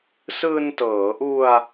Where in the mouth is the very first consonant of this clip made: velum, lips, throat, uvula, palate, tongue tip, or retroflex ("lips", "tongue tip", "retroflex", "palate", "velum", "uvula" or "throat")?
tongue tip